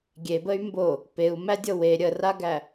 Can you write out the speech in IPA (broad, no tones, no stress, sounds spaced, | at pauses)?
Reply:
ɡʲ e b ə y̯ m b o | p e u̯ m æ dʲ ɤ w e ɾʲ ə r a ɡ æ